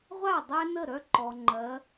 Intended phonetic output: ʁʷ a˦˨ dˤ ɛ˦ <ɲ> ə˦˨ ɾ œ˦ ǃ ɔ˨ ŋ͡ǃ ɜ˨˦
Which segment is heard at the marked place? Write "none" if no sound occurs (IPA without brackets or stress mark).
n